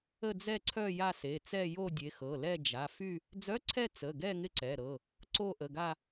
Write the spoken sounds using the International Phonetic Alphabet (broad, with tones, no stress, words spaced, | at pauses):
ə˥˧d͡zɛ˥˧ǀʰœ˥˧ ja˥˧se˩˧˩t͡sɛ˥˧ jo˥˧dʲe˨˦xɤ˩˧˩lɛ˥˧ d͡ʒa˩˧˩fy˥˧ | d͡zœ˧˥˧ǀʰɛ˥˧ t͡sə˩˧˩ɡɛ˥˧ ŋɪ˥˧ǀɛ˩˧˩ɾɤ˩˧˩ | ǀo˥˧ʔə˩˧˩ɡa˥˧